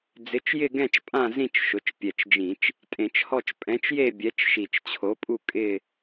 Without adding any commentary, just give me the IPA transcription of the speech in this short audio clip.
d͡z ɪ˨˥ t͡ʃ j ɪ˥˧ ɡ ɛ̃˥˧ t͡ʃ pʼ ã˥˧ z ĩ˥˧ t͡ʃ ʃ ʊ˩˧ t͡ʃ pʲ ɛ˨˩ t͡ʃ d͡ʒ ĩ˧˩˧ t͡ʃ | tʼ ẽ˧˩˧ t͡ʃ h ɔ˥˧ t͡ʃ pʼ ɛ̃˨˥ t͡ʃ j e˥˧ bʲ ɛ˨˥ t͡ʃ ʃ i˨˩ t͡ʃ t͡ɕʰ o˨˥ pʼ u˥˧ kʼ ɪ˥˧

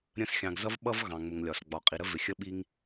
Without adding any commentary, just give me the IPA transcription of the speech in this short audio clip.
ɾʲ ə̃˦ s xʲ ɑ̃˨ ɡ z ʌ˦ v ɓ ʌ˦ v ɣ ɑ̃˨ ŋ͡m ʊ˨ ŋ lʲ ɒ˨ s ɡ͡b ɒ˨ qʼ i˨ ɾ ə˦ v ɪ˨ xʲ ə˦ ɓ i˦ ŋ

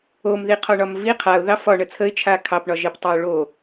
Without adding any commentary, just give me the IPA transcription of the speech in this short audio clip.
o m ð i qʰ ɒ ɳ ɒ m v i qʰ a ʊ̯ ð ɑ f ɒ ɳ ə t͡sʰ ə ɪ̯ t͡ʃʰ a kʰ ɑ p ɳ ɒ ʒ e p tˤ a ʊ̯ ɭ o

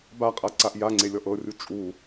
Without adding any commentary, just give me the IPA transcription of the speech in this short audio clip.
b a qʼ a ǀ a ʔ j a ŋ͡ǀ e lʲ ɔ ʔ ɤ rʲ u t͡ʃʼ u

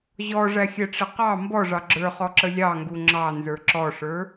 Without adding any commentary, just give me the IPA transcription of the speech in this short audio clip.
ʑ ɔ ʐ æ xʲ ɛ ʈ͡ʂ ɪ q ɑ m b ɔ ʐ ɑ ɡ͡ǁ ə˞ χ ɔ ǁ ə lʲ ɑ ŋ ɡ u ŋ͡ǁ ɑ n z ə˞ ǁ ɔ ʂ ə˞

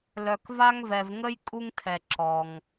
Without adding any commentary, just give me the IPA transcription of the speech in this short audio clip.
l œ˨ k v a˥ ŋ v ɛ˨ v ŋ ə˥ j kʼ u˥ ŋ tʰ ɛ˨ ǁ ɔ˩ ŋ

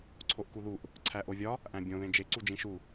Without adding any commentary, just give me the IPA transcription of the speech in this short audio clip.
ǀʰ o ʔ k u ð u ʔ | ǀʰ æ ʔ o vʲ ɒ | ʔ æ̃ bʲ õ ð ẽ d͡ʒ e ǀ u d͡ʒ ĩ ʃ u

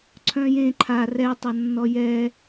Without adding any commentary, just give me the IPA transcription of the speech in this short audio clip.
ǀʰ œ̃ j ẽ ǃʰ a r ɛ tˤ a nː ɔ j ɛ

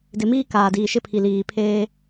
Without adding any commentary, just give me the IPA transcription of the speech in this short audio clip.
d ɪ˨ m iː˦ k aː˨ d iː˨ ʃ ɪ˦ pʰ i˨ l iː˨ pʰ eː˦

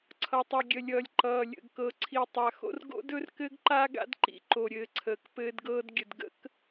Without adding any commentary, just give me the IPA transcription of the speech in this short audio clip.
ǀʰ ʌ˨ tˤ ʌ˨ ɡʲ ə˨ lʲ ʌː˨ lʲ ǃ ʌː˨ lʲ ə̰˨ ɡ k ɤ˨ ǀʰ i˨ tˤ a˨ x o̰˦ r ɡ o̰˦ d ɵ˦ r k ɘ˦ ɡ ǃ a˦ ɡ a̰˦ d ǃ ḭ˨ ǃ o˨ ɾʲ ɘː˨ ǀʰ əː˨ k p ɘː˦ d ɡ ɤː˦ d ɡʲ ə˨ d ɡ ə̰˦ k

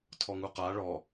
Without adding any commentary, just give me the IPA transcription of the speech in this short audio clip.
tʰ ɔ ŋ u q a ɭ ɔ

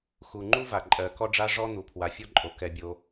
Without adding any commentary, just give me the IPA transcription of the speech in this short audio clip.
x u˩ ŋ͡ǃ u˥ v a˩ ǃʼ ɜ˩ k ɔ˥ ɖ͡ʐ a˥ ʐ ɔ˥ n̪ u˩ pʰ w a˩ fʲ ɔ˥ ǃʼ o˩ k ɛ˩ bʲ o˩

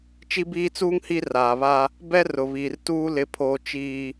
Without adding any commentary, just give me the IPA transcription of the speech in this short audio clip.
t͡ʃ i˦ b iː˦ t͡s uː˦ ŋ h i˦ r aː˨ β a˦ | b ɛ˦ r ʊ˨ β iː˨ r t uː˦ l ɪ˦ pʰ oː˦ t͡ʃ iː˦

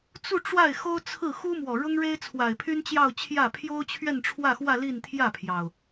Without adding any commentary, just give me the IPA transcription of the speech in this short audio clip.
t͡s u˥˧ ʈ͡ʂ w a˥˩ ɪ̯ x o˥ ʊ̯ t͡sʰ ɹ̩˥˩ x u˥ m w ɔ˨˩ ɻ ʊ˥ ŋ ɻ e˥ ɪ̯ t͡sʰ w a˨˩ ɪ̯ pʰ y˥ n t͡ɕ j ɑ˥˧ ʊ̯ t͡ɕʰ j ä˥˩ pʰ j o˥ ʊ̯ t͡ɕʰ ɥ ɛ˥˧ n ʈ͡ʂʰ w ä˥˧ x w ä˥˧ l i˥˧ n t̪ʰ j ä˥˩ pʰ j ɑ˩ ʊ̯

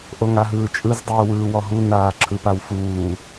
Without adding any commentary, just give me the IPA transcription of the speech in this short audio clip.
ʔ o ŋ a ɦ ɯː t͡ʃʼ ɯ z dˤ uː w ɯː w ɔ ɦ u n aː ǁʰ ɯ p a w f uː

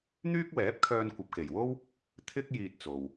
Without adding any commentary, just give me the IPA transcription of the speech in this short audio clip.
n̪ yː˥ k̚ w ɛː˨˥ p̚ kʰ œː˧ n kʷ ɐ˨ p̚ k e˨˩ j w o˥ w | t̪ʰ ɪ˥ k̚ j iː˧ t̚ t͡s o˨ w

